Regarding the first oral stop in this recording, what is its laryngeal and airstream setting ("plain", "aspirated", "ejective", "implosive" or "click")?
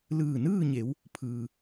aspirated